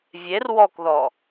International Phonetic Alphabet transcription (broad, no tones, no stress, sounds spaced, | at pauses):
vʲ e r w ɔ k ð ɔ